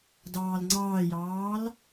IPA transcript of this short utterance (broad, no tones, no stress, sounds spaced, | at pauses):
d ɑː l ŋ͡ǀ ɑː j ɑː l